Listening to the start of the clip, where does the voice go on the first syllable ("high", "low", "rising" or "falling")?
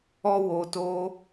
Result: high